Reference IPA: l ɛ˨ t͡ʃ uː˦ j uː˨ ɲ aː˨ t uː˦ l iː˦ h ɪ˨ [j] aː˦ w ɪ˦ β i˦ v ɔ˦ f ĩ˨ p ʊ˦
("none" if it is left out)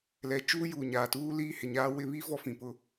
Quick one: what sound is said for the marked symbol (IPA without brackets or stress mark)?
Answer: ɲ